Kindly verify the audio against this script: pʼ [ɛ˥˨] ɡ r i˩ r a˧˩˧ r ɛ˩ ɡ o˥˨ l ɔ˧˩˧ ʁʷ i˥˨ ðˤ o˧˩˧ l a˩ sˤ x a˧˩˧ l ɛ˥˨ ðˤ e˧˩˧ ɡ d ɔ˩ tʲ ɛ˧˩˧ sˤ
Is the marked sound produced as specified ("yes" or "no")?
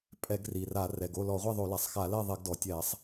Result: no